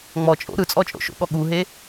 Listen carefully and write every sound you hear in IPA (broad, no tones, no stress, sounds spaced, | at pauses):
ŋ͡m ɔ t͡ʃʼ o̰ ɾ ɯ t͡sʼ ɔ t͡ʃʼ o̰ ʃ o̰ ɠ ɔ ɠ u ɦ e